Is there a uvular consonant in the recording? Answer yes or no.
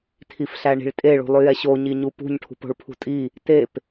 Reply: no